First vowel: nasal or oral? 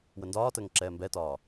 oral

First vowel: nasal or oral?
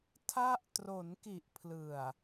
oral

